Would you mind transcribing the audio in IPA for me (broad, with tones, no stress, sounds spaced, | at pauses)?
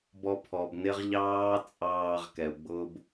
b ɔ˧ pʰ ɔ˨ b n ɪ˦ ʁ ʎ ɑː˦ t͡sʼ ɑː˧ ʁ k ɛ˨ u̯ ɡ͡b ʊː˦ b